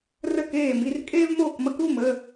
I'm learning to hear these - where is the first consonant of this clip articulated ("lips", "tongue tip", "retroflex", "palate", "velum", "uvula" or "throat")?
tongue tip